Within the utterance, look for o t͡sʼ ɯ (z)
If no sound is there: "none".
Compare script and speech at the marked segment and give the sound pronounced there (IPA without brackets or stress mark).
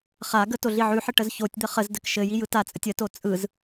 z